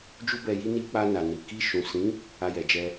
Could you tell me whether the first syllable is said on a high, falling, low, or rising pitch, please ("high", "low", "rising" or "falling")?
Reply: high